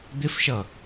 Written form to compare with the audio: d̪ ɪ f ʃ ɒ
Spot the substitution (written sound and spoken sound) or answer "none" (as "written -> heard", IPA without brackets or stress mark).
ɒ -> ʌ